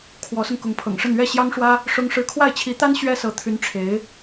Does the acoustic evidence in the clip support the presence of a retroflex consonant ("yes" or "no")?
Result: yes